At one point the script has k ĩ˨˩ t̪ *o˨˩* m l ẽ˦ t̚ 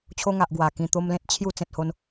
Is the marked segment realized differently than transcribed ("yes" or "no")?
yes